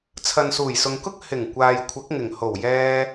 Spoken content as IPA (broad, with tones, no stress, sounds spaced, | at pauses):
t͡sʰ ɐ˨ n s uː˨˩ j s ʊ˨ ŋ k ʊ˥ k̚ h ɪ˨˩ ŋ kʷ aː˨ j kʷʰ ɐ˨˥ k̚ ŋ ɪ˨˩ ŋ h o˨˩ w j ɛː˧